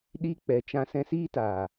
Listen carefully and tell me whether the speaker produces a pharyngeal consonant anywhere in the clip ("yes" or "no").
no